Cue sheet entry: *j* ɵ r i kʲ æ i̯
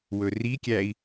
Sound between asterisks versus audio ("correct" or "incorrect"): incorrect